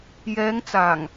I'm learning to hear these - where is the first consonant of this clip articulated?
palate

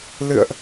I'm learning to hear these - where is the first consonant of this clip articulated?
tongue tip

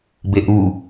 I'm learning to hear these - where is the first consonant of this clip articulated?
lips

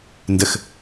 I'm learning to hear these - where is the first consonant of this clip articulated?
tongue tip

